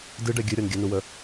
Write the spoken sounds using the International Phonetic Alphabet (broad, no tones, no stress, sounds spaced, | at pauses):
d ɨ ɖ ɛ ɡʲ ɨ ɾʲ ɔ n ɡʲ ə n u w ə